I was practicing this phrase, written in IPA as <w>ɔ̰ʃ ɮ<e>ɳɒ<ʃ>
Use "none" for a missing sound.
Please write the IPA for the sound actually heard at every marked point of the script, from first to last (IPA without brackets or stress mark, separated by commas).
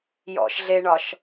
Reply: j, e, ʃ